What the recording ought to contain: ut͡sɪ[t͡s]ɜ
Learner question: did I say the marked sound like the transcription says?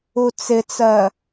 yes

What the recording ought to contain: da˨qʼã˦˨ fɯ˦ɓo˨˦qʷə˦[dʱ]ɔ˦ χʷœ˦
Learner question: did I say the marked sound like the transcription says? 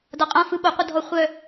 yes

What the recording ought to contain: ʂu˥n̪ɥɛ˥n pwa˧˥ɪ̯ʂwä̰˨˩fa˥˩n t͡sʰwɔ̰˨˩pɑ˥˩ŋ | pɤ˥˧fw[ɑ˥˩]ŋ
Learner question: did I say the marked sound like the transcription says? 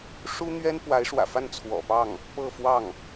yes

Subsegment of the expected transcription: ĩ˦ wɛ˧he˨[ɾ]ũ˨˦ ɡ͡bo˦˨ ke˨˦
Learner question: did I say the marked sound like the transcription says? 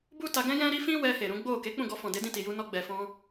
yes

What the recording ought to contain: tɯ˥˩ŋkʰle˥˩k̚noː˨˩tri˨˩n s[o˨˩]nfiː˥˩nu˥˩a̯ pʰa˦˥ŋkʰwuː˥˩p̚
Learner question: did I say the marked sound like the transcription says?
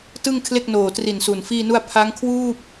no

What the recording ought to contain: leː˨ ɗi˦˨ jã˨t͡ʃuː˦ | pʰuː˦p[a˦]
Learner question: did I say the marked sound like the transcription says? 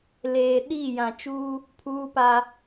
yes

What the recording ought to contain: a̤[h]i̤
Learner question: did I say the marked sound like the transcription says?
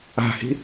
yes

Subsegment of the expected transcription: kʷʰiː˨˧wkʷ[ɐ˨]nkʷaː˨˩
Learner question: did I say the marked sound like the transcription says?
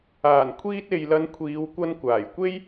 no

